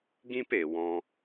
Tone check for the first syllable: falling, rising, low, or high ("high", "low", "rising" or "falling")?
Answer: high